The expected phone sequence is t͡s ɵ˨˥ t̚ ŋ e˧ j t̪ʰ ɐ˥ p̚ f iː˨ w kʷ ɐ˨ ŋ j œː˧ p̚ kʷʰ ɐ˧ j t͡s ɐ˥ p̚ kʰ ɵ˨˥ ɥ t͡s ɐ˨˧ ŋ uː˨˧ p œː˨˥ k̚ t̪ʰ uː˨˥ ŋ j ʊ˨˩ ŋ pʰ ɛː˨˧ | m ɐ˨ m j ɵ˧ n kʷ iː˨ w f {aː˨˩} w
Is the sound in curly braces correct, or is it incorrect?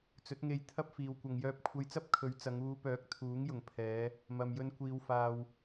incorrect